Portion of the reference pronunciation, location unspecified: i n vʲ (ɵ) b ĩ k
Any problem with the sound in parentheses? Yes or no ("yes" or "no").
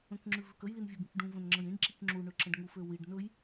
yes